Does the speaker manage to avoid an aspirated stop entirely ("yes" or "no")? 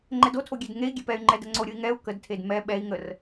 no